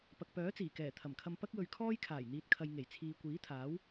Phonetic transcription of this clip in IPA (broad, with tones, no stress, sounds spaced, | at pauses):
p ɐ˨ k̚ p œː˨˥ t͡s iː˨˩ k ɛː˨˩ t̪ʰ ɐ˨˩ m kʰ ɐ˧ m p ɐ˥ k̚ w ɵ˧ ɥ kʰ ɔː˥ j kʰ aː˨˩ j n̪ iː˨ t̚ kʰ ɐ˨ j ŋ e˨˩ j t͡sʰ iː˨ kʷ iː˨˥ t̪ʰ aː˨˥ w